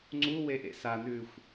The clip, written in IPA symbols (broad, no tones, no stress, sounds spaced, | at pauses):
ŋ͡ǀ u w e ʔ ḛ s a n ʉ xʷ